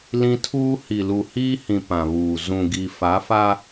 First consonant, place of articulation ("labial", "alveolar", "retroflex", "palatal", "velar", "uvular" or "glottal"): alveolar